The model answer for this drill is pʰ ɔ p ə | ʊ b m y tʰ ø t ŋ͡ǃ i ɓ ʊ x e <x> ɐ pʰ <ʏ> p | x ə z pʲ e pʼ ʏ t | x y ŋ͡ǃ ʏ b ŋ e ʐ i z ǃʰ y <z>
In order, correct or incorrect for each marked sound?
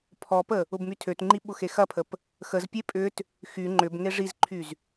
correct, incorrect: ə, correct

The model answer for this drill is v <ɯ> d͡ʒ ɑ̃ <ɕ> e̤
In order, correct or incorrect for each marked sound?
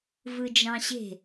correct, correct

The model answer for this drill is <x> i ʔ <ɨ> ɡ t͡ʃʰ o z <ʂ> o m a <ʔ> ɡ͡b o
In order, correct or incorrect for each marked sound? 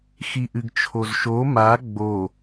correct, correct, incorrect: ʃ, incorrect: none

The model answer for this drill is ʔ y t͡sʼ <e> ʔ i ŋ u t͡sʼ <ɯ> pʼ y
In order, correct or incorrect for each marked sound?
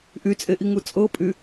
correct, incorrect: ɤ

